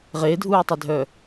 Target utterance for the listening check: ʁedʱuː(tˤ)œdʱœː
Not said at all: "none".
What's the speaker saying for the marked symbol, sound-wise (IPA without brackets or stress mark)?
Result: tˤ